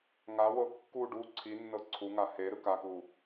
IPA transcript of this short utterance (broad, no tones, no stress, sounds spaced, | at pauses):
ŋ a w ɤ kː u ɖ u ǀʰ i nː ɤ ǀʰ u ŋ a h e ɾ ɯ k a k u